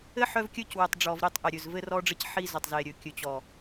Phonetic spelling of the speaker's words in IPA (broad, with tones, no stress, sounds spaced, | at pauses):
ɘ˦ ħ œ˦ v kʲ ɵ˦ c w ɘ˨ tˤ ɖ͡ʐ ɔ˨ v ɾ i˦˨ tˤ ʔ e˨ ɾʲ ɵ˨ z v ɘ˦ r ɔ˦ ɖ͡ʐ ɘ˦ c ħ i˦ z ɵ˨ tˤ z e˨ ɾʲ ɵ˨ kʲ ɵ˨ t͡ɕ ɔ˨